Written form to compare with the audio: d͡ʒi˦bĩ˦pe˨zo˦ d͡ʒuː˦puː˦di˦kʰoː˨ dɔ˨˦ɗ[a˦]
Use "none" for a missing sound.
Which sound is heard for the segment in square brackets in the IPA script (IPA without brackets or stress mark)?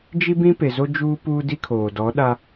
a˦